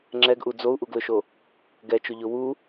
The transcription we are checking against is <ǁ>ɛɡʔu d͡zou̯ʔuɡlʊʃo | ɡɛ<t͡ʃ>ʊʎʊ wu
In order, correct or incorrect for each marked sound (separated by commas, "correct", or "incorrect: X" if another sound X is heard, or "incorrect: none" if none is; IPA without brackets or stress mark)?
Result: incorrect: ŋ͡ǁ, correct